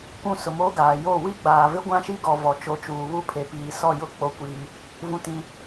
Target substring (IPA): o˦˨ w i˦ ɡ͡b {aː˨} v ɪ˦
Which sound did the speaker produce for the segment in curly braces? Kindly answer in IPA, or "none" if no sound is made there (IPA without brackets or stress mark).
aː˨